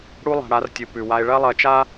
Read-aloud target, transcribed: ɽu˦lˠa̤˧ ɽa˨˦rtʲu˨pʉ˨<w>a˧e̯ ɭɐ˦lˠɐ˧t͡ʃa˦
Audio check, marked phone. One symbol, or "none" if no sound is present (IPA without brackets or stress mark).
w